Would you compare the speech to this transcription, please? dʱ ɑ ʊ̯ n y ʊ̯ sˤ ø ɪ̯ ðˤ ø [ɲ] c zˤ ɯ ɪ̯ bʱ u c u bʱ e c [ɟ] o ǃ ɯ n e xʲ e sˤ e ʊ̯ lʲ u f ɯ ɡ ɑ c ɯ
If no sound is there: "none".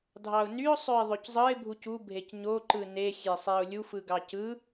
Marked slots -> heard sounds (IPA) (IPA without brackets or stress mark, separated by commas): none, ɲ